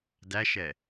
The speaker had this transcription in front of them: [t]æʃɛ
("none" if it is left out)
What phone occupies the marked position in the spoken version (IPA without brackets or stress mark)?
d